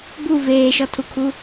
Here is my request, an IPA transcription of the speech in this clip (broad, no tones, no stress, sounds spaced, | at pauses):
b u v eː ʃ ɔ tʰ u kʰ u